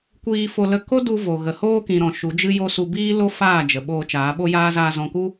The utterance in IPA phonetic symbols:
kʷiː˧fo˧lə˧ ko˦du˧vo˨ ɣə˨hoː˧kĩ˨ɾɔ̃˨ ʃu˨˦d͡ʒɨ˦jo˦ su˧biː˦ lo˦faː˦˨ d͡ʒə˨ ɓoː˧t͡ʃaː˨˦ɓo˦jaː˦ zaː˧zɔ̃˧ku˦

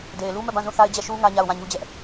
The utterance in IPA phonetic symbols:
de˨ɪ̯lu˦mɛ˦˨bã˦˨ zũ˦˨θa˦ɪ̯d͡ʑɛ˦˨ʃu˦ ŋä˦ɲa˦˨ʊ̯ wã˦˨ɲu˦d͡ʑɛ˦ʔ

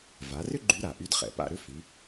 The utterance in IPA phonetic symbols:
va˩˧rʏ˥ ɡ͡ǃy˧˥ɾa˩ ʔy˧˥dχɛ̰˩pa̰˧ ɾʏ˧˥fi˩˧

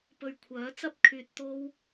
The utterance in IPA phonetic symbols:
pɵ˧ɥkʷʰœː˨˥ t͡sɐ˥p̚kʰyː˧t̚ t̪o˥w

